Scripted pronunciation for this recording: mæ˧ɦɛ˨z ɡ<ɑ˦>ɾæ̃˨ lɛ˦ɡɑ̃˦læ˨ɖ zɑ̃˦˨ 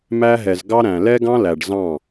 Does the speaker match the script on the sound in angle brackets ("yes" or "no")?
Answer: yes